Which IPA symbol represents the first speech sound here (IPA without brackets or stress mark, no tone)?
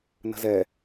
n